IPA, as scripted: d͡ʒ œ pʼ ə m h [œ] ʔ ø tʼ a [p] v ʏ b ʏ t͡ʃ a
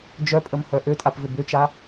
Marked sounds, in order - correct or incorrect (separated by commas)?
correct, correct